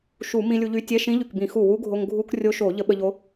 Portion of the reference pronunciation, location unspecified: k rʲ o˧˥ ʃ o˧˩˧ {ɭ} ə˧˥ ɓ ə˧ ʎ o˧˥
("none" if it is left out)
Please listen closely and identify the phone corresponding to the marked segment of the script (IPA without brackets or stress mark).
ʎ